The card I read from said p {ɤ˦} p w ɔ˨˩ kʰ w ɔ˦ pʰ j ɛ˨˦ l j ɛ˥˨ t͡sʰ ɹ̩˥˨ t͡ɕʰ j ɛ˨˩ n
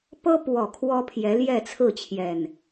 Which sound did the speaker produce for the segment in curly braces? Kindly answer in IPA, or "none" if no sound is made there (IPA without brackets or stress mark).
ɤ˦